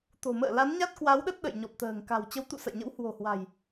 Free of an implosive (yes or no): no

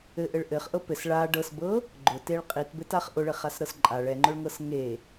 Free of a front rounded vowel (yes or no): yes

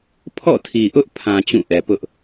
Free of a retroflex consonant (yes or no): yes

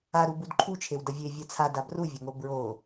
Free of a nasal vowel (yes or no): yes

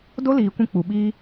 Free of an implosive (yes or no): no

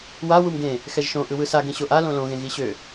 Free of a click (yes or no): yes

